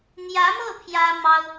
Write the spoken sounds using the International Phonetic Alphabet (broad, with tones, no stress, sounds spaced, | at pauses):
n̪ j ä˧˥ m ɤ˥˩ pʰ j ä˥ m ɑ˥ ʊ̯